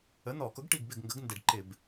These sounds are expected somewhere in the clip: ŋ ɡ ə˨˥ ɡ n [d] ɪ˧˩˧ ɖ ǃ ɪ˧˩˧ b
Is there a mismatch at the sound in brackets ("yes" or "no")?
no